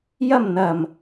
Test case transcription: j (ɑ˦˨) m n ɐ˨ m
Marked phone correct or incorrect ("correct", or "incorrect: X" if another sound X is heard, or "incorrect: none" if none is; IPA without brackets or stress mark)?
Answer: incorrect: ɐ˦˨